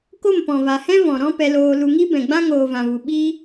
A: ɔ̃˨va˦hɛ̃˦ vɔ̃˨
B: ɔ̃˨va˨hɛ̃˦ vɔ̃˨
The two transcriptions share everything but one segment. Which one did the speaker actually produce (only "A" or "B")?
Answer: B